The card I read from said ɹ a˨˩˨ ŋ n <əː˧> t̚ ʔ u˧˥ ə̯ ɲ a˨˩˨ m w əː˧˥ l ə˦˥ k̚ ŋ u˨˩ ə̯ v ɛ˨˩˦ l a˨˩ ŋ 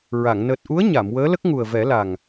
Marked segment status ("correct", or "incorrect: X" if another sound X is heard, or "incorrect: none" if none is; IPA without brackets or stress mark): incorrect: əː˨˩